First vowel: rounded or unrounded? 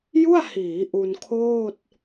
rounded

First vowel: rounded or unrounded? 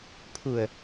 rounded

